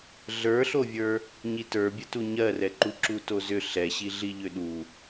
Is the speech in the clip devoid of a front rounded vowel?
no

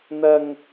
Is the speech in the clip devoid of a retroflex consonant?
yes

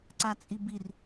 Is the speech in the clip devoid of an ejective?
no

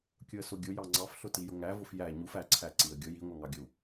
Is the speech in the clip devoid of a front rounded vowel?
yes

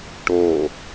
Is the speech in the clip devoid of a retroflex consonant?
no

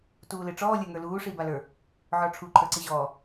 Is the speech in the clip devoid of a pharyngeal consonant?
no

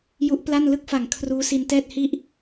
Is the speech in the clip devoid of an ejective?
yes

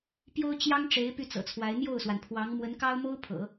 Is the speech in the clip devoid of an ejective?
yes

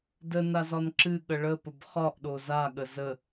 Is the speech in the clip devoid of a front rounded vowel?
yes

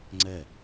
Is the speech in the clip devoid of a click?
no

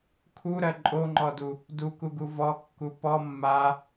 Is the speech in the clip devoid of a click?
no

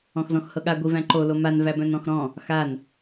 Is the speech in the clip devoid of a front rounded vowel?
no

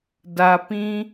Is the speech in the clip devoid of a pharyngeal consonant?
yes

